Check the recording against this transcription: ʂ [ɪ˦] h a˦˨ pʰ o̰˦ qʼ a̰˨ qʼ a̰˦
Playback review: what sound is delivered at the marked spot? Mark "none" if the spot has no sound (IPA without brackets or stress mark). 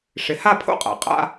ɪ˨˦